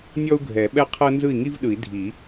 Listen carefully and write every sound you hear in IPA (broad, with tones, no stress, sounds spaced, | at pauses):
nʲ ɔ˥ u̯ ɡʱ ɛ˨˩˦ ɓ ɛ˥ qʰ ɤ˥ n z ɯ˥˩ i̯ ŋ i˥ v ɗ ɯ˨˩˦ i̯ dʱ i˨˩˦